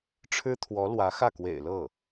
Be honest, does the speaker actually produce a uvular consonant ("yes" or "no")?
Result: no